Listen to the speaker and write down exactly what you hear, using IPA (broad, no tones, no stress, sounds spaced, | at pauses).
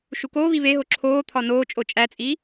ʃ u k oː β i β e ɦ o ǁʰ oː t̪ʰ ɒ n oː t͡ʃʼ o t͡ʃʼ æ t͡sʼ iː